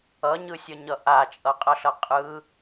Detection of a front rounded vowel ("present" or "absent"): absent